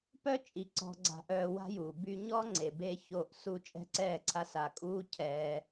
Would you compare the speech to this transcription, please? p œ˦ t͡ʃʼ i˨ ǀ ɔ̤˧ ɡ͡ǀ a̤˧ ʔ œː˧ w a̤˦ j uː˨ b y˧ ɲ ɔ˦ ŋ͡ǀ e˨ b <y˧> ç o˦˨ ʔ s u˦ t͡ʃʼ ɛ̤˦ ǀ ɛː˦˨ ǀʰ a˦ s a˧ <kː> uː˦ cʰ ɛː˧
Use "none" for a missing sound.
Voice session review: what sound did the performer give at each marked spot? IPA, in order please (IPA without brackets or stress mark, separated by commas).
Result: e˧, kʼ